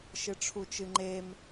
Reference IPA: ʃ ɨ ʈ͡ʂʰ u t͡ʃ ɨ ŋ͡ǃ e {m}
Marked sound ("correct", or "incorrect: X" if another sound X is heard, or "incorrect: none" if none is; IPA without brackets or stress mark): correct